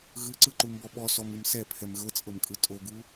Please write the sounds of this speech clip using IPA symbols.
ɣ ɯ ǀ ɯ ǃ u m b ɔ ɓ ɔ s ɔ m ɯ m s ɛ pʰ ɛ m ɣ ɤ t͡sʼ ɤ m kʼ ɯ tʼ o ɡ u

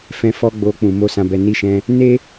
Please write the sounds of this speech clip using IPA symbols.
f ɛ̃˧ f ɔ˦ ɡ͡b o˧ k͡p ũ˨ m o˧ s ã˨ b ɛ˨ n i˨˦ ʃ ɛ̃˧ | n e˦

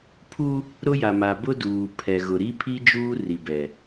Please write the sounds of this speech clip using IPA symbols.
pʰ u˦ | ɾ ʊ˦ j a˨ m a˨ b ʊ˦ d uː˨ pʰ ɛ˨ ɣ ʊ˨ ɾ i˦ pʰ i˦ d͡ʒ uː˦ r i˨ b ɛ˨

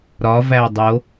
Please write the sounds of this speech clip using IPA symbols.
ɾ ɒ v æ dˤ o

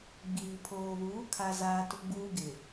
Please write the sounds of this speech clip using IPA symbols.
ɡ͡b iː˨ pʰ oː˨ β uː˨˦ kʰ a˦ z aː˦ t ʊ˦ ɡ͡b uː˦ ɡ ɪ˨

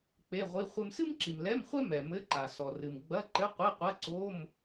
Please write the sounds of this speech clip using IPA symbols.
k͡p e˧˥˧ ʁʷ i˧˥˧ χʷ ɘ˥ m s ɨ˥ m ǁ i˨ m l ɛ˧˥˧ m χʷ ɛ˥ m ɛ˨ m ɘ˧˥˧ ǃ a˨ s ɔ˨ r ɨ˨ m ɡ͡b ɐ˧˥˧ ǃ ɘ˧˥˧ qʷ e˧˥˧ qʷ ɐ˧˥˧ ǀ o˧˥˧ m

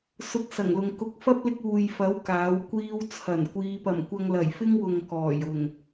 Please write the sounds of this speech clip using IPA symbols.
s ʊ˧ k̚ s ɐ˨˩ ŋ l ʊ˨ ŋ k ʊ˨˥ k̚ f ɐ˥ p̚ l ɪ˧ k̚ uː˨ j f ɐ˨˥ w k aː˨˥ w kʷ iː˥ w t͡sʰ ɐ˨˩ n kʷ iː˨˧ p ɐ˨˩ m kʷ ɐ˧ ŋ l ɐ˨˩ j f ɪ˥ ŋ w ʊ˨ ŋ k ɔː˨˩ j ʊ˨˩ ŋ

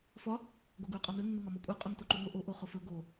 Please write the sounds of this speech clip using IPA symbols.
f ɒ | ɡ o ɡ u y̯ qʼ ɒ n ɵ nː ə ŋ ɒ m o kʷʼ ə˞ qʼ ʊ ŋ t o ǃ u ŋʷ ə ʔ o ʔ o χ ʊ f ɵ ɡ o

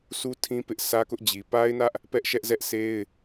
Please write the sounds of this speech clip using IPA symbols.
s u˦ tʰ ĩ˦ p ɪ˦ ʔ s ä˦ k ʊ˦ ʔ d͡ʑ i˨ p a˦ ɪ̯ n ä˦ ʔ | p ɛ˦ ʔ ʃ ɛ˦ ʔ z ɛ˦ ʔ sʰ e˦ ɪ̯

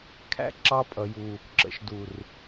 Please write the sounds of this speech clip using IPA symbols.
kʰ æ̰˧ ǁ ɑ˧ pʼ ʌ˨ j u˨ | ǁ ə̰˨ ʃ d u˨ r

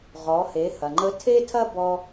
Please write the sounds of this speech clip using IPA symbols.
ʁ ɔ˩˧ h e˩˧ h ɐ˩ ŋ͡ǃ ə˧˥ tʰ e˥ tʰ ɐ˥ b ɔ˧

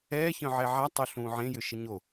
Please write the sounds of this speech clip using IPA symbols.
ɛː ç œ̃ ʕ ɛ ʕ a tˤ o ɬ ũː ʕ ẽ j ʏ ʃ ɪ ɲ o

